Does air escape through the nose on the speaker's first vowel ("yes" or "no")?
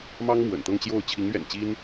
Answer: no